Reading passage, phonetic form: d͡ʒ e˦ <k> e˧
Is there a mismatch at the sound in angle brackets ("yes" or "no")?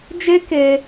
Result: no